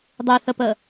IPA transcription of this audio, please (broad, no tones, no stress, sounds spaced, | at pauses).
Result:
dˤ ʉ θ ə p ə